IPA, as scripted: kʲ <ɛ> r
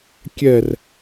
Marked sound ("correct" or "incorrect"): correct